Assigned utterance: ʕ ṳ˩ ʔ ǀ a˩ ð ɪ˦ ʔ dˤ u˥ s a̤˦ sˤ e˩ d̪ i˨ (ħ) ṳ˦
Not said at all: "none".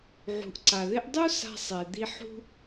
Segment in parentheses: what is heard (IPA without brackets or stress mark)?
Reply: ħ